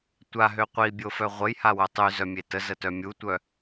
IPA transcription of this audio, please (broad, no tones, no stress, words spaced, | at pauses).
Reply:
tʷaɦø qʷibʲofœ ʁʷəjhawœ tˤyzœmʲe təzətœ mʲutʷœ